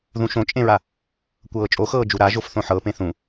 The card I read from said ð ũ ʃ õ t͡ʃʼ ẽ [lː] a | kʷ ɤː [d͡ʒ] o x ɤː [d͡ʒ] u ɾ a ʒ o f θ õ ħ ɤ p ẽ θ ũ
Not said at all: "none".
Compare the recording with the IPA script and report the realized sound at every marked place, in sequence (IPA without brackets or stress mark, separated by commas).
ɹ, t͡ʃʼ, d͡ʒ